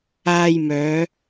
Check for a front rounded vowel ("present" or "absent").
present